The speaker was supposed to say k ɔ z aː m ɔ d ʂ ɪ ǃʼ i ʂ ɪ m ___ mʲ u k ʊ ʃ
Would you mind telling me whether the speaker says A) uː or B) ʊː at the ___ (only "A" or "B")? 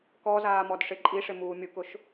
A